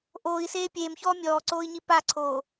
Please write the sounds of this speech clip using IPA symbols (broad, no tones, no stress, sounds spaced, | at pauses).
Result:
ʔ oː i̯ s eː pʲ eː m ç ɔː mʲ ɔː ǀ oː i̯ ɲ i p a ǀʰ oː